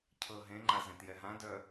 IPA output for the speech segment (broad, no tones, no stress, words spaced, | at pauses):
cʰɤɦẽŋ͡ǃa zẽtjɛɦãdœ